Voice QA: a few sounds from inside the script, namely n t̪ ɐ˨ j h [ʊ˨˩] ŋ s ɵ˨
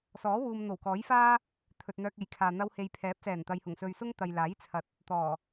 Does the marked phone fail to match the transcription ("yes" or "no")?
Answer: no